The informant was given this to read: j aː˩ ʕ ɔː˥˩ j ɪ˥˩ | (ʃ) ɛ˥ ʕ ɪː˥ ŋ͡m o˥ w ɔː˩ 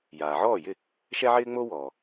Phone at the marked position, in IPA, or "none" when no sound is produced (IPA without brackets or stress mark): ʃ